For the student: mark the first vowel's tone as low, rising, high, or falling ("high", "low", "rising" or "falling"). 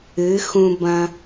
rising